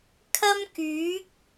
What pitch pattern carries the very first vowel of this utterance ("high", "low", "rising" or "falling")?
high